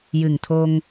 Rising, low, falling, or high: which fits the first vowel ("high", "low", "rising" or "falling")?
low